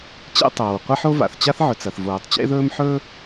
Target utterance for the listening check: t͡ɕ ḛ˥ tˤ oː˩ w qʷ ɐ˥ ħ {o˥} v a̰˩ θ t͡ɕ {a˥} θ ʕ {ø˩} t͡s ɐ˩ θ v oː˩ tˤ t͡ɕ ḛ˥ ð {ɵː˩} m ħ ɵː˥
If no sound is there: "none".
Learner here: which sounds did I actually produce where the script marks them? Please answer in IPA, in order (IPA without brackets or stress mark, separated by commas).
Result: o˥, a˥, ɵ˩, ɵː˥